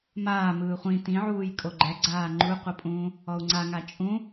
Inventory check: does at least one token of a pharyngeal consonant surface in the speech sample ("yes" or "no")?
yes